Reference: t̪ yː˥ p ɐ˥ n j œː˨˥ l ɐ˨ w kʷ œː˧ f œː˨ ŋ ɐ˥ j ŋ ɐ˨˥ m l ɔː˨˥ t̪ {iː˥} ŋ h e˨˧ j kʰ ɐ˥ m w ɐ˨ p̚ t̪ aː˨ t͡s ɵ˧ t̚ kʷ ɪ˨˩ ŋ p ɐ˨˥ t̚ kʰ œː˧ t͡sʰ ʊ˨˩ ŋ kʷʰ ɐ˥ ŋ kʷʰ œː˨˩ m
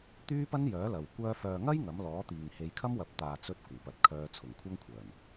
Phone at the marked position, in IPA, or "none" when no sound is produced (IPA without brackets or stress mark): iː˨